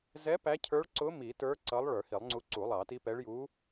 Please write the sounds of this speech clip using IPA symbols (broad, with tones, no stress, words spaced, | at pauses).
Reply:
zɛ˧˥ pæ˧˥cʰə˞˧˥ɭǀʊ˧˥ mi˨˩˦tə˞˧˥ ǀʌ˧˥lˠ ɭə˞˨˩˦hi˨˩˦lˠŋ͡ǀu˧˥ ǀu˨˩˦lˠɑ˨˩˦ti˧˥pɛ˧˥ɭ ju˧˥